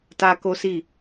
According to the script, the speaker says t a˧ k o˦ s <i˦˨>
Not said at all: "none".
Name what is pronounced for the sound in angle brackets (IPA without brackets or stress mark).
i˦˨